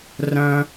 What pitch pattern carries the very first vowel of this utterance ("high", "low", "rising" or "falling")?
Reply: high